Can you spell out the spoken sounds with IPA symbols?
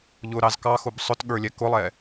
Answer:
ʎ ʊ ɾ ɑ z k ɑ x ʊ b sˤ ʊ t ɠ ə˞ lʲ ɛ k ʊ lˠ ɛ

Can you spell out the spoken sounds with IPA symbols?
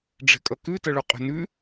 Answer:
ɖ͡ʐ ɛ̤ kʼ ʌ k ʉ t ʌ ɭ o qʼ ɛ̤ n ʉ

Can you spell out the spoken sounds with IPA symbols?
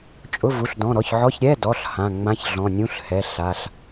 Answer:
t͡ʃʼ ʊ˧˥˧ v u˩˧˩ ɬ d ɔ̃˩˧˩ ɾ ɔ˩˧˩ ç ʕ ɔ˧˥˧ ç ɾʲ ɛ˧˥˧ d ɔ˩˧˩ ɬ h ã˩˧˩ ŋ͡m ã˧˥˧ ç ɮ ɔ̃˩˧˩ nʲ ũ˧˥˧ ɬ h ɛ˩˧˩ ɬ a˩˧˩ ɬ

